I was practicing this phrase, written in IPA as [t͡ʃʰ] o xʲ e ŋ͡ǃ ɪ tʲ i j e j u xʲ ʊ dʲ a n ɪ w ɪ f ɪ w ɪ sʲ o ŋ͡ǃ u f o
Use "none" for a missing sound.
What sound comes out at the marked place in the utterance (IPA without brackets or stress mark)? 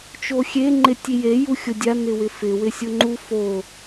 t͡ʃ